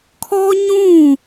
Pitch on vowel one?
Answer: high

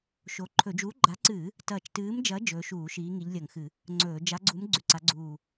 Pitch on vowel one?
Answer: rising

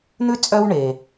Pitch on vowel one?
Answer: high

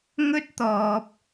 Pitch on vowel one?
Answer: high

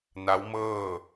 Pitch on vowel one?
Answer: rising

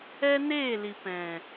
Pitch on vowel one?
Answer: high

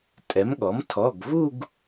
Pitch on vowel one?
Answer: rising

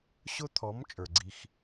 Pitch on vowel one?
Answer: high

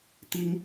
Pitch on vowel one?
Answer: high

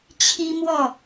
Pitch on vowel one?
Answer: high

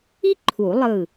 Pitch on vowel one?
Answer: high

